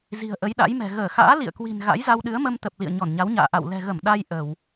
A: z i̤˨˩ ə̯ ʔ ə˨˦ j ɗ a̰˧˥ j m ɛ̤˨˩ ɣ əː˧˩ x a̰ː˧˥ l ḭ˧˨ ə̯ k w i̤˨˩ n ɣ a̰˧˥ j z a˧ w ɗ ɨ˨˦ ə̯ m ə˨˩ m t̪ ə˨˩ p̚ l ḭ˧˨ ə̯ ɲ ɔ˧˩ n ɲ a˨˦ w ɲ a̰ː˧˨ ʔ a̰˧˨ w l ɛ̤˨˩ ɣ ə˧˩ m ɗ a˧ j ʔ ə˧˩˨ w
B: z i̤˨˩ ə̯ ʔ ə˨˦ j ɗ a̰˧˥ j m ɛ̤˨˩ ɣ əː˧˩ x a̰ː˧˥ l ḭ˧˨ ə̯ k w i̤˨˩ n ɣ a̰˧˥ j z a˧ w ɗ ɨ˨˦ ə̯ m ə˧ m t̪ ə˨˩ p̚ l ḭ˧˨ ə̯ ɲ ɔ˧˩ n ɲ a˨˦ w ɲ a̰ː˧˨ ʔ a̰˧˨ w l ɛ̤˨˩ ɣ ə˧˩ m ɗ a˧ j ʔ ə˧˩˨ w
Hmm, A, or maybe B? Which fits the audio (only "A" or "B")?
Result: B